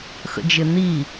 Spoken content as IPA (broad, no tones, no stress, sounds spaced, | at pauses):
x ə̰ d͡ʒ ɪ n̪ i